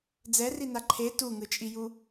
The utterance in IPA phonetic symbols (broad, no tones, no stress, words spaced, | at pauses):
d͡zɛrina ǃʰe tuŋɯt͡ʃʼiju